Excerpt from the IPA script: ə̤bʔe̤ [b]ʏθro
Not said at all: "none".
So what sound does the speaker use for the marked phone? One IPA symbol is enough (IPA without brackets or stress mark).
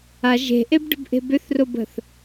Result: b